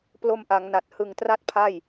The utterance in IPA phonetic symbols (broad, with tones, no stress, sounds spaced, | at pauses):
p l o˧ m ʔ a˩˦ ŋ n a˨˩ t̚ h ɯ˨˩ ŋ t r a˦˥ t̚ pʰ a˥˩ j